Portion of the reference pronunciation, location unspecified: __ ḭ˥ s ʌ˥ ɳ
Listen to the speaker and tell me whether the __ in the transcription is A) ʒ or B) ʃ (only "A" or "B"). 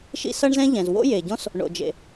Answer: B